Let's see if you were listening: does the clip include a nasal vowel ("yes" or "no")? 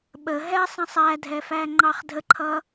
yes